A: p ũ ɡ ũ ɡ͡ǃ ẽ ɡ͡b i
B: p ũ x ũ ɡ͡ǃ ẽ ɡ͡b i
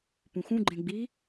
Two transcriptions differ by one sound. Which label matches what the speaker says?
B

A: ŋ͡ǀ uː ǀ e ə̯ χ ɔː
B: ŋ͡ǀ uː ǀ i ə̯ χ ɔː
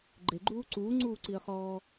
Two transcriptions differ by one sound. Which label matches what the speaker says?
B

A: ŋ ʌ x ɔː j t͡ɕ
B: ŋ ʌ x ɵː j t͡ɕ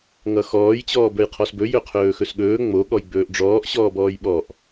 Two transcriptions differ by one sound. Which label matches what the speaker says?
A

